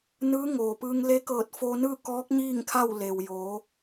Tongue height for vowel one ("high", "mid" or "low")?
high